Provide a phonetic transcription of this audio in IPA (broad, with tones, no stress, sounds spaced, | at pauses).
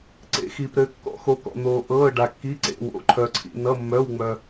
ǀ ḛ˧˥ x iː˧ p ɾ ɘː˧˥ kː ɔ̰˧˥ x o˧˥ k ɔ̰˧ n̪ oː˧ ʔ ɤː˧˥˧ ɖ a˧ kː i˧˥˧ ǀ ḛ˧˥˧ w o̰˧˥˧ ǃʰ œ˧ ǀʰ ḭ˧ n ʌ˧˥˧ mː œ˧˥˧ w ŋ͡m œ˧